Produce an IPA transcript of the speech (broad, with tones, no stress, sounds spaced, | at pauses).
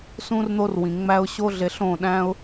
s ũ˦ r n̪ o˦ r w ĩ˨ ŋ͡m æ˧ ʊ̯ ɕ o˦ ɮ e˧ ɬ õ˦˨ ɗ æ̃˦ ʊ̯